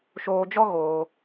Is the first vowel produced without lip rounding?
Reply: no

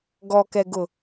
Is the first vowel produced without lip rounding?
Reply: no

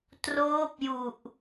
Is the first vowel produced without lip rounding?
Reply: no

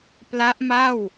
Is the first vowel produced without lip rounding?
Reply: yes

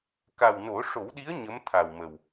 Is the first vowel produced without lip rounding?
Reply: yes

